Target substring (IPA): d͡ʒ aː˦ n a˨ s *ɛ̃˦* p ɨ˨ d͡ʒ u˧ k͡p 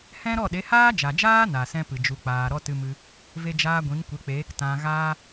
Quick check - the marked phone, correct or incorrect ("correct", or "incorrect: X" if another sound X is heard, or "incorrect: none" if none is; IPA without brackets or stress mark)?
correct